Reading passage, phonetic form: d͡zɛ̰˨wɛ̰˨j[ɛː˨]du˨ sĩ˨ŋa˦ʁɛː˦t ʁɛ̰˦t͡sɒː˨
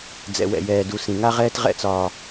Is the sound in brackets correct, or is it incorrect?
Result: correct